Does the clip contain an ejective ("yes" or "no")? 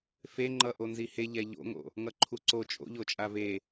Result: yes